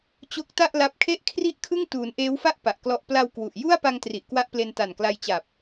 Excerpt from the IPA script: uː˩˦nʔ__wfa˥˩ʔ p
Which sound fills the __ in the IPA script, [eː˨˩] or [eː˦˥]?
eː˦˥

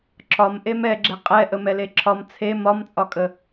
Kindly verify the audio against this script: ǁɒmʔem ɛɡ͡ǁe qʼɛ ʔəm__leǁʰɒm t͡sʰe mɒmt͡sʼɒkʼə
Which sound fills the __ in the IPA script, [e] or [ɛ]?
ɛ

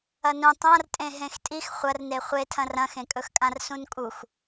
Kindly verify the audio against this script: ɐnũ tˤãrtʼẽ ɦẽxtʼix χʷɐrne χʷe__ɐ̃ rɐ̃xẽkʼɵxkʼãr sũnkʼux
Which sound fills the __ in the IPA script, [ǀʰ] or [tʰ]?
tʰ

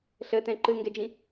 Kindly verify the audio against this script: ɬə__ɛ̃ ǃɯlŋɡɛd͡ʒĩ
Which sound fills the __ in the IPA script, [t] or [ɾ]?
t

